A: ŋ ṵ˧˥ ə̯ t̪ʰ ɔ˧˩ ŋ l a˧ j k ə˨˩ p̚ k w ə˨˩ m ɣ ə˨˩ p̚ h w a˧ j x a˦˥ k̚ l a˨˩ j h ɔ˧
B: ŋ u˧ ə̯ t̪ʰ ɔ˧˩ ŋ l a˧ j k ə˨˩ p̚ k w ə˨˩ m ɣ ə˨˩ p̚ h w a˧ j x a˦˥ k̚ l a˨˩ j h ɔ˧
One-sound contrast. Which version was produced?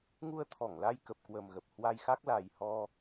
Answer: B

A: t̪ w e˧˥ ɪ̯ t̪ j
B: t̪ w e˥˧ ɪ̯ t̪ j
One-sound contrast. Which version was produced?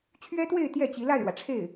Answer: B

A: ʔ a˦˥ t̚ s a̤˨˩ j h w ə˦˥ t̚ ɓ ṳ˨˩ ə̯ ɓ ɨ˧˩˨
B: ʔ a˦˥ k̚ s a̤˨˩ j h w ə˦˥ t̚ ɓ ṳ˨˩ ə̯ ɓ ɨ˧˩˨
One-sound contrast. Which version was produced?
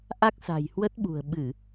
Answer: B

